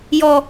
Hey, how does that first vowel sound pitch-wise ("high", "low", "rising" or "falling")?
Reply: high